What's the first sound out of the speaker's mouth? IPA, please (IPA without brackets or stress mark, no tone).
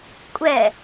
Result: kʷʼ